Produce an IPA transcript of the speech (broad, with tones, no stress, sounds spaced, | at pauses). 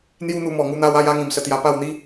n̪ j u˦ n̪ u˧ m ɔ˨˩ ŋ u˧ n̪ a˦ w a˦ j a˦ ŋ ĩ˨˩ m s ə˧ t̪ j a˧ p a˥˧ w n̪ i˦